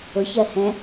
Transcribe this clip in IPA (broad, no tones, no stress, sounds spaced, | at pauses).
ʊ ç ɜ h ɛ̃